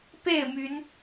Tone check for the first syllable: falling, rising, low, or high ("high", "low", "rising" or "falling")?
falling